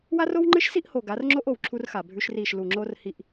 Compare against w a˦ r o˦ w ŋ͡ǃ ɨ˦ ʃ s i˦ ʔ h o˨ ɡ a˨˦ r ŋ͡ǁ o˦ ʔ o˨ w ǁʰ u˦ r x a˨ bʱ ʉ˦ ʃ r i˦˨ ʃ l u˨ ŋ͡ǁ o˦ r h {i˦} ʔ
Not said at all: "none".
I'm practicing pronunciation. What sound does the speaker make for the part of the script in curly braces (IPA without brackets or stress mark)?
i˦